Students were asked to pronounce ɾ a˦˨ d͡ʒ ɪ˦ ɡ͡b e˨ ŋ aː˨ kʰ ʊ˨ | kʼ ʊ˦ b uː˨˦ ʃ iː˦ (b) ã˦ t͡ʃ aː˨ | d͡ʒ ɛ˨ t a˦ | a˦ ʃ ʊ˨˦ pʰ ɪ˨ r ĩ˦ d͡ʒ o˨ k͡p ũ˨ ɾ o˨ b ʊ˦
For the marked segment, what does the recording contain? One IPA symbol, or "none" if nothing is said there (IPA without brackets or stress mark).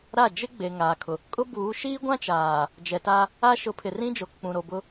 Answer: ɡʷ